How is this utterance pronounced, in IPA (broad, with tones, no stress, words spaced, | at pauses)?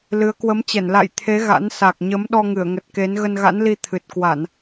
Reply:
lɨ˨˦ə̯ kwə˨˦mt͡ɕɛ˧˩n la̰˧˨j t̪ʰe˨˦ ɣa̰˧˥n sa˨˩k̚ɲə˨˦m ɗɔ˧ŋɨ˧˩ə̯ŋə˨˩t̚ke˨˦n ɣə˧nɣa̰˧˥nli˧ t̪ʰɨ˨˩t̚kwa˧˩˨n